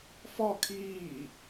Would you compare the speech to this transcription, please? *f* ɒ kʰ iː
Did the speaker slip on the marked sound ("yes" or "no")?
no